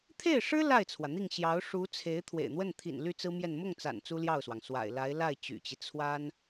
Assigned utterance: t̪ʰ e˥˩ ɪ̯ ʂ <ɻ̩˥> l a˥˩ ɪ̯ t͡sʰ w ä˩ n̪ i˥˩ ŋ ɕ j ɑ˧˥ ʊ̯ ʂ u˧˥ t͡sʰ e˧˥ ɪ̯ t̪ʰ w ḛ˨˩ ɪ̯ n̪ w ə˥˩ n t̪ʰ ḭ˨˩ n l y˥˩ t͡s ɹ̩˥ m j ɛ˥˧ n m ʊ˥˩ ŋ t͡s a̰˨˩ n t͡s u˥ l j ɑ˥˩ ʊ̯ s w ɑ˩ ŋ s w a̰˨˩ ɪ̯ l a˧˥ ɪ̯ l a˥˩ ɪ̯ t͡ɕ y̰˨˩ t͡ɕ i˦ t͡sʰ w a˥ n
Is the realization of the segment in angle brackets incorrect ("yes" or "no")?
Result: no